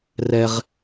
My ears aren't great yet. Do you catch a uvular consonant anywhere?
yes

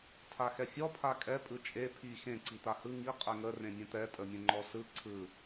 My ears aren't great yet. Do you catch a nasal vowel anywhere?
yes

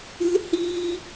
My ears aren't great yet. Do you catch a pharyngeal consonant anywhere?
no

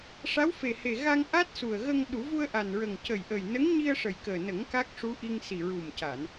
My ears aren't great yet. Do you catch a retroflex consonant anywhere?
yes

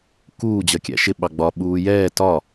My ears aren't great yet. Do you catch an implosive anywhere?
yes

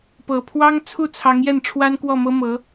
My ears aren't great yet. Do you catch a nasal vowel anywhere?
no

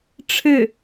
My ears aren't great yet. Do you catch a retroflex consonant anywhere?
yes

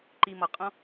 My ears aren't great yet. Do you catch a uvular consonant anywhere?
yes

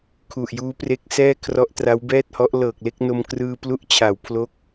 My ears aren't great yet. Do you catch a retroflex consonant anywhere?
no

